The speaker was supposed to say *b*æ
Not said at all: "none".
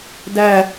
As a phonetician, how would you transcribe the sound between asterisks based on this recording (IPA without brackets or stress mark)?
d